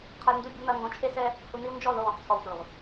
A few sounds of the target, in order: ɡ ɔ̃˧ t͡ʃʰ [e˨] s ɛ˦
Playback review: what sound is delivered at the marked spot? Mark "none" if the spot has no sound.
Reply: e˦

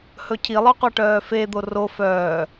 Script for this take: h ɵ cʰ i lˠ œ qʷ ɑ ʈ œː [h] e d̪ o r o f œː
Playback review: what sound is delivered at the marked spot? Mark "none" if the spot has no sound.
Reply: f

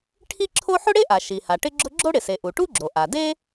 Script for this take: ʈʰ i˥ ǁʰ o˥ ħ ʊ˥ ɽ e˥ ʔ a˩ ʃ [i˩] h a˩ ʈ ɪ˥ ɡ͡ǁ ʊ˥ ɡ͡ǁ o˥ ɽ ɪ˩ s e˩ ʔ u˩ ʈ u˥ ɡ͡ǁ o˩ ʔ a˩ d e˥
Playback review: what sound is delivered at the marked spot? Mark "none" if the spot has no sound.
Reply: i˩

